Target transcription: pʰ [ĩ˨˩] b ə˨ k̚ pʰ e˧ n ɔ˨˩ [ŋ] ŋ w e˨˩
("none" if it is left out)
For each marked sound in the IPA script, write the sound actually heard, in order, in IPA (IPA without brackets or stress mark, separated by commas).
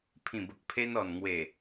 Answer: ĩ˨˩, n